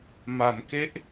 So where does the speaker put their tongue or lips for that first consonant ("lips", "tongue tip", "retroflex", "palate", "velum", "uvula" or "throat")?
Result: lips